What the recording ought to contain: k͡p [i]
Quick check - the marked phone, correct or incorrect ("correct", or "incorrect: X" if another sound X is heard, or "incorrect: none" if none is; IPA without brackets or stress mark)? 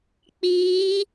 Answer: incorrect: iː